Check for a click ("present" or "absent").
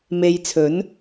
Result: absent